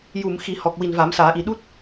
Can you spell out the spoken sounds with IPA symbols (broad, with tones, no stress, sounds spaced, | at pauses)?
j u˨˩˨ m x i˨˩˦ h ɔ˨˩ k̚ w i˨˩ n v a˨˩˦ m s aː˨˩˦ ʔ i˨˩ ɗ u˦˥ t̚